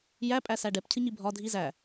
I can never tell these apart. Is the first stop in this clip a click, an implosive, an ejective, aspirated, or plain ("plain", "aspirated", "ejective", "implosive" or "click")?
ejective